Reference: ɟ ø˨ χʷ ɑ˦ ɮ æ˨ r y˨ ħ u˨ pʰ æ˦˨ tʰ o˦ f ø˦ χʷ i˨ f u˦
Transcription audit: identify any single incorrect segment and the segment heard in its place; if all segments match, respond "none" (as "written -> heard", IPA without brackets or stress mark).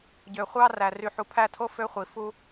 ɮ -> r